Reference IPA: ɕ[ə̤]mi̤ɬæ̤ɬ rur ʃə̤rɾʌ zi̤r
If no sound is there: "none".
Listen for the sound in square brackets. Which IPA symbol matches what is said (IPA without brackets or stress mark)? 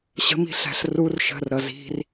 ə̤